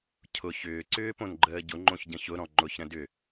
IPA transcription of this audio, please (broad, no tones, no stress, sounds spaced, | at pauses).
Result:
cʰ ʊ ç ʏː ǀ ʏː p õ n ɡ͡ǃ əː ɟ ʊ ŋ͡ǃ õ ç ɟ ə̃ ç ʊ ɾ ɔ̃ ŋ͡ǃ ʊ ç ɾ ə̃ d ʏ